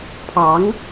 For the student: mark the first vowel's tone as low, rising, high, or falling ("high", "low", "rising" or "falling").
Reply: rising